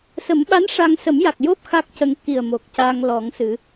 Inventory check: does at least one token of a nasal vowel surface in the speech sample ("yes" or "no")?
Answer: no